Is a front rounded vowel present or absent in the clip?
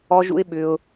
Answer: present